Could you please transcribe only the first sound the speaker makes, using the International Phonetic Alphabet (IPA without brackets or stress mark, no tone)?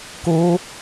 k